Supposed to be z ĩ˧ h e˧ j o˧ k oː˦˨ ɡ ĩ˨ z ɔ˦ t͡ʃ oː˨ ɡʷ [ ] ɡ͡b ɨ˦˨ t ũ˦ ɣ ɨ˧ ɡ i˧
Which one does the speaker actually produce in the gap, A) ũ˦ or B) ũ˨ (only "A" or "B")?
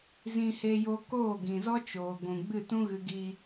B